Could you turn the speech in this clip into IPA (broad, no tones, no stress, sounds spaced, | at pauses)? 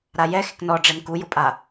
ɾ a j ɛ x ɪ k n ɔ ɖ͡ʐ ɛ n k u j ʊ pʼ a